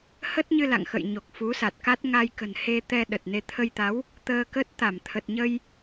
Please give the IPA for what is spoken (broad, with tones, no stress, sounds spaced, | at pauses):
h ə˦˥ t̚ ɲ ɨ˧ l a̰˧˨ ŋ x ə̰˧˨ j ɲ o˨˩ k̚ f u˨˦ s a˨˩ t̚ k a˦˥ t̚ ŋ a˧ j k ə̤˨˩ n h e˧ t̪ ɛ˧ ɗ ə˨˩ t̚ n e˧ t̪ʰ ə˧ j t̪ a˨˦ w | t̪ əː˧ k ə˦˥ t̚ t̪ a˧˩ m t̪ʰ ə˨˩ t̚ ɲ ə˧ j